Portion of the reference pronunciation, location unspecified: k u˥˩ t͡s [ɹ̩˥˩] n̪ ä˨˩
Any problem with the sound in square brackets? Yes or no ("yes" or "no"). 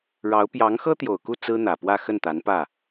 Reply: yes